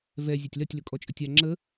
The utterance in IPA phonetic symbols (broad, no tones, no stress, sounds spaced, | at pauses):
v ɛ zʲ œ tʲ l ɐ tʲ l ɵ kʼ ɔ t͡ʃʼ ə tʲ a ŋ͡ǁ ə